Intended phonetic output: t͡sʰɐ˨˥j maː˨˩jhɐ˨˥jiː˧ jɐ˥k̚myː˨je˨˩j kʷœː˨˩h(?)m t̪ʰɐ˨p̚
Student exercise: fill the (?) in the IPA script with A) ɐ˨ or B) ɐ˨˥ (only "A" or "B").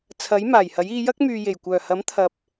B